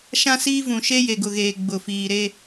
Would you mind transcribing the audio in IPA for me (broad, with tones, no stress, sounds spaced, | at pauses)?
ʃ ã˦ s iː˦ v ũ˨ ʃ e˦ j e˨ ɡ ʊ˨ ɣ eː˨ ɡ͡b ʊ˨ f iː˨ ɾ e˦